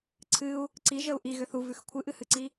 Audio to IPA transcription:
ǀʰ ɨ u̯ | ǀ i ʒ ə u̯ ʔ i ɣ ʏ θ u v ʉ x kʷʰ ɨ ʔ ɨ h ɨ ǀ i

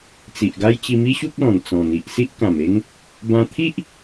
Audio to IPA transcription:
t͡s i˨ ʔ ɡ a˦ j t͡ɕ i˧ m i˦ ɕ u˦ k̚ l ɔ̃˨˩ n t͡s ɔ̃˨˩ n̪ i˨ ʔ s i˦ ʔ k ã˨˩ m e˦ ŋ | b ã˧ t̪ʰ i˦ ʔ

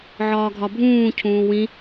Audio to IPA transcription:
ʕ ɒː ɡʱ ɒ bʱ ũː cʰ ũː w ĩ

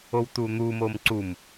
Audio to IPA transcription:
o w t u n̪ u m o m ǀ u m

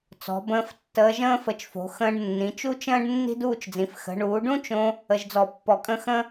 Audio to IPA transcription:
t͡s ɔ̤˩˧ b ə̃ː˧ f tː əː˧ ʒ ə̃ː˥ f ə˧˩ t͡ʃ f o̤˩˧ x ə̃ː˧ ɖ nː ĩ˩˧ t͡ʃ u˥ t͡ʃ ə̃ː˥ ɖ nː i̤˥ d uː˥˧ t͡ʃ d͡z ĩ˩˧ f x ə̤˩˧ ɳ uː˩˧ ɖ ũ˥ t͡ʃ õ˧ | ə˧ ʒ d͡z ɔ˧˩ pː ɔ˧˩ kʼ ə̃˥˧ x ə̃˥

